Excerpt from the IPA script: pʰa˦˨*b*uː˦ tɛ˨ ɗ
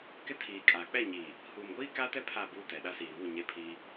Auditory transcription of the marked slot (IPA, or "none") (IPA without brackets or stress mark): b